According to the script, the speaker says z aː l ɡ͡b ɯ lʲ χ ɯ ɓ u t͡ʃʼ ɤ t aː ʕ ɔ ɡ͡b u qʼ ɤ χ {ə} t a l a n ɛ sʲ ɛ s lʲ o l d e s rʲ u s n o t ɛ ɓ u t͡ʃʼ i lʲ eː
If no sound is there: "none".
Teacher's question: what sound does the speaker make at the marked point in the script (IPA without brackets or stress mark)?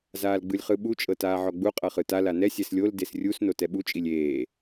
ɯ